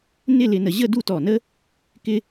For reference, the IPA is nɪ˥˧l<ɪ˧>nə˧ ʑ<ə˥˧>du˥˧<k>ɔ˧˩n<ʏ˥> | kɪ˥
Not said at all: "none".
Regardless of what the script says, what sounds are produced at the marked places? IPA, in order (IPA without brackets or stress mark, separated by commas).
ɪ˧, ə˥˧, t, ə˥